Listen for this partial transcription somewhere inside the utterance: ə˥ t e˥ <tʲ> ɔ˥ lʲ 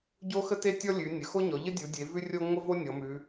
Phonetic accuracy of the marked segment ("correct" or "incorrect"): correct